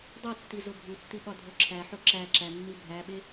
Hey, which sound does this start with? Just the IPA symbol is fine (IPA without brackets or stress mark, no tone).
dˤ